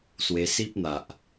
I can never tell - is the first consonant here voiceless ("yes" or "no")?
yes